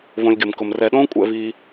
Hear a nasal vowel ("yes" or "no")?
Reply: yes